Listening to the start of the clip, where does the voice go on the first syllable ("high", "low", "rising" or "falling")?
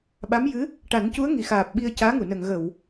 rising